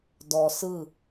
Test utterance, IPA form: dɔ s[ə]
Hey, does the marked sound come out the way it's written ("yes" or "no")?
no